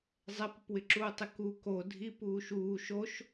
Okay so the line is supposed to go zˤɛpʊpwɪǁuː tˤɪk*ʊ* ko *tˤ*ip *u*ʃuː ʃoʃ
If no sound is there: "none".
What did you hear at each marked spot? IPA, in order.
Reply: u, dʱ, uː

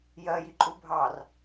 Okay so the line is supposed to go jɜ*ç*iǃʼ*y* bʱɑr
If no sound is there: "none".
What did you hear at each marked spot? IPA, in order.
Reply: j, u

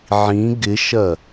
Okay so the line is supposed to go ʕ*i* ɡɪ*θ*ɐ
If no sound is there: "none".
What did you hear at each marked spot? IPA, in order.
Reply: ĩ, ʃ

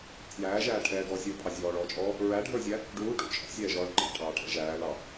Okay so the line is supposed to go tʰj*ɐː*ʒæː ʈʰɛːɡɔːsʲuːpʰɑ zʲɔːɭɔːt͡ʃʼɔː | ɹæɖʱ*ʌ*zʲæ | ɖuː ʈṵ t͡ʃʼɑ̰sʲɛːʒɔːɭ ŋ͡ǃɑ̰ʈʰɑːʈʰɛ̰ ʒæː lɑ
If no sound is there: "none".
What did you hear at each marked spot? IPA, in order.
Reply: æː, ə˞

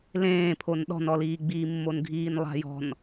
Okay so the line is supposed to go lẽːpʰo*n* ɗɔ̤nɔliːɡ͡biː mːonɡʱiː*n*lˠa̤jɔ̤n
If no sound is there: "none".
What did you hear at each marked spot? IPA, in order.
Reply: n, n

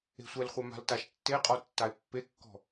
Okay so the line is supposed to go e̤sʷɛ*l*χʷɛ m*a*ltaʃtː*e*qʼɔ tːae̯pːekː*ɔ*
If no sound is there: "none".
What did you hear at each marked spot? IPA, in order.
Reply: l, a̤, e, ɔ̤

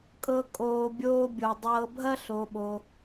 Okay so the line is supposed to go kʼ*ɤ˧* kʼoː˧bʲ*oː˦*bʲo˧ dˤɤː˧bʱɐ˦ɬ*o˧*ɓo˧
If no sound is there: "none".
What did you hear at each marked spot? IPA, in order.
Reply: ɤ˧, oː˦, o˧

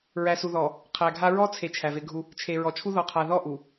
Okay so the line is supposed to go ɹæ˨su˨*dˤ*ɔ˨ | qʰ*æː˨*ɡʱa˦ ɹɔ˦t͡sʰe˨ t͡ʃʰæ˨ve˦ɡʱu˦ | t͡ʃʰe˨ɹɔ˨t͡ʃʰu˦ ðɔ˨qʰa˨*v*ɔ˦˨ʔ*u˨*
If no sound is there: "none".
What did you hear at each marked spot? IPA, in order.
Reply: ð, æ˨, ð, u˨

